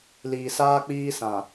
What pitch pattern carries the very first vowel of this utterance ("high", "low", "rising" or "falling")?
low